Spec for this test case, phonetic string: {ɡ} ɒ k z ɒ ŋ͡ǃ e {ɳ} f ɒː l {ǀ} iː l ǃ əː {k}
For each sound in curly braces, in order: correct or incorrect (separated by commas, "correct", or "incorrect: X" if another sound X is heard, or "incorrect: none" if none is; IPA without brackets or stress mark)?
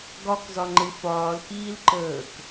correct, correct, incorrect: k, correct